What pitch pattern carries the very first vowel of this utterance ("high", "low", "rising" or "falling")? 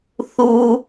high